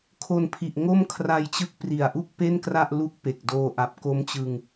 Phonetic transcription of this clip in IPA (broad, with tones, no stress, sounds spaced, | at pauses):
kʰ o˧ n pʰ i˨˩ ʔ ŋ o˥˩ m kʰ r a˧ j t͡ɕ ɯ˦˥ k̚ p r i˨˩ a̯ ʔ u˥˩ k̚ p e˥˩ n k r a˥˩ ʔ l u˦˥ k̚ p e˨˩ k̚ d oː˧ ʔ a˨˩ p̚ k o˦˥ m t͡ɕ ɯ˧ ŋ